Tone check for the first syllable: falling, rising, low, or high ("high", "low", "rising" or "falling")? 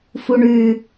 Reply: low